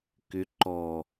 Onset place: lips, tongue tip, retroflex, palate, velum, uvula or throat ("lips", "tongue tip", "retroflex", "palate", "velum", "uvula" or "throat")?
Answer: velum